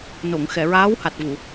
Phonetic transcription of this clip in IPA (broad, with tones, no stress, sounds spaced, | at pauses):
n o˨˩˨ ŋ x ɛ˨˩˨ ɹ aː˧˥ w h a˨˩ t̚ v u˨˩˨